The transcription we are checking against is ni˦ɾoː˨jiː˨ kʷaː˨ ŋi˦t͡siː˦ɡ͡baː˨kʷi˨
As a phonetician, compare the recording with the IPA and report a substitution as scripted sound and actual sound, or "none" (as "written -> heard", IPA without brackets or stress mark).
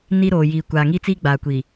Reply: none